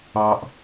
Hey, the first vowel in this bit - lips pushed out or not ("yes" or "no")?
no